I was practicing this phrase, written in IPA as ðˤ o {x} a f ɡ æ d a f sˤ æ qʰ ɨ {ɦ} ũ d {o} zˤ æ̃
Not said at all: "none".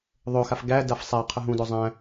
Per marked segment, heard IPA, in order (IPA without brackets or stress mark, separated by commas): x, ɦ, o